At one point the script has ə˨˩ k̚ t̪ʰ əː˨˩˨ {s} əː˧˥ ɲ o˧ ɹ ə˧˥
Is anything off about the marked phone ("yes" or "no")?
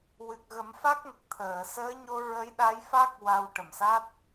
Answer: no